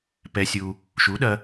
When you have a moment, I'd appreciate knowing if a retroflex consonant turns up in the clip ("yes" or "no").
no